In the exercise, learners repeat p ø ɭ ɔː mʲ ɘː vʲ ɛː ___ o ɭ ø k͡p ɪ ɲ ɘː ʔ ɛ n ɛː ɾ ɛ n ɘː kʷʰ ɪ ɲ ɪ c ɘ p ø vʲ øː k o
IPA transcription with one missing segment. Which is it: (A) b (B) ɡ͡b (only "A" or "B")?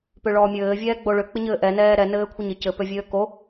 B